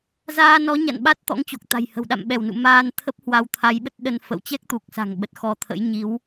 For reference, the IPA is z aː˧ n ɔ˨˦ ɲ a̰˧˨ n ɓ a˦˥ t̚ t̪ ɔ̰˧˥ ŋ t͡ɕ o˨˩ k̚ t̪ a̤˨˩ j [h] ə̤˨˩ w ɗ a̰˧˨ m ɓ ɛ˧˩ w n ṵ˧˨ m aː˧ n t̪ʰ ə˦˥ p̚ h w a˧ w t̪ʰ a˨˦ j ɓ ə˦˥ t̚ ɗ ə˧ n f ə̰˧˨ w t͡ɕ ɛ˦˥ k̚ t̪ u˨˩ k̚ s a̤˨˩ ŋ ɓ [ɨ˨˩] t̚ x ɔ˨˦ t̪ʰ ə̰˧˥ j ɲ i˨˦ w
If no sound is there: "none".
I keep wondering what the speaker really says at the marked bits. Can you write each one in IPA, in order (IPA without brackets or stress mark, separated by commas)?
h, ə˨˩